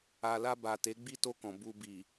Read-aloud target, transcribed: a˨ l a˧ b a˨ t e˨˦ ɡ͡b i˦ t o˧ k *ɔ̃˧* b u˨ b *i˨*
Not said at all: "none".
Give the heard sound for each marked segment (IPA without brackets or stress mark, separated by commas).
ɔ̃˨, i˨